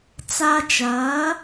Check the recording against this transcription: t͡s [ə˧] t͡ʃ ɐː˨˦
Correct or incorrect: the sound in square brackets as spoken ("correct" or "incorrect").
incorrect